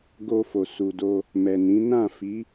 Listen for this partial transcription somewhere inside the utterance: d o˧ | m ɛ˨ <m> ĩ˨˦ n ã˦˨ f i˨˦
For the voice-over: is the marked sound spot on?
no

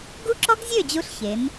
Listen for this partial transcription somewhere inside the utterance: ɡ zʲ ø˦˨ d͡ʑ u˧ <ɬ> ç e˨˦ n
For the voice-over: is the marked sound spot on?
yes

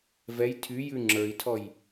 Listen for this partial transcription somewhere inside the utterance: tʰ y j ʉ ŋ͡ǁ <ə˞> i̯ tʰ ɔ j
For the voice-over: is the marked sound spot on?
yes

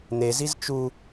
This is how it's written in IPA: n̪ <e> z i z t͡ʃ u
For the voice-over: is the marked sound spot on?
yes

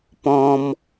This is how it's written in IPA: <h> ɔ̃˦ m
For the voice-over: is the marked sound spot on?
no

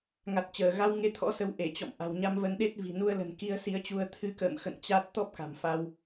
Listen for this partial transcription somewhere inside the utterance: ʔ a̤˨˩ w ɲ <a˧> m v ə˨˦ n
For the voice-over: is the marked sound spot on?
yes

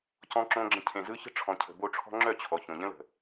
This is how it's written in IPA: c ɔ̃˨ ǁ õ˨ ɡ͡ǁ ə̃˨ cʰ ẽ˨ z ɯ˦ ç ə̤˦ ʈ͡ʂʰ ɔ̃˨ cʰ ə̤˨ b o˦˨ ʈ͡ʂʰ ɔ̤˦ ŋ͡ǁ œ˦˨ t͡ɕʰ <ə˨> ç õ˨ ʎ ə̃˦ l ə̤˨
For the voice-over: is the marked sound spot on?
no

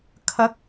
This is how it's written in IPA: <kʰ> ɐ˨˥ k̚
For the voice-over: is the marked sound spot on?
yes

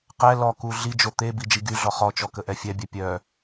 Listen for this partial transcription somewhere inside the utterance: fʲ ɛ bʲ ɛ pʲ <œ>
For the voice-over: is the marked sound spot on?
yes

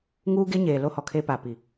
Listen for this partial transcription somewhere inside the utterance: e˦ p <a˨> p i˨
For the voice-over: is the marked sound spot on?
yes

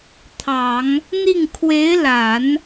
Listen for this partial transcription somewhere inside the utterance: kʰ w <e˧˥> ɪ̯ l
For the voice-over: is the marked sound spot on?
yes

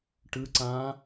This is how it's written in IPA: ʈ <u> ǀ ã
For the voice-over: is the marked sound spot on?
no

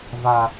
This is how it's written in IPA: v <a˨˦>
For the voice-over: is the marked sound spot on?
no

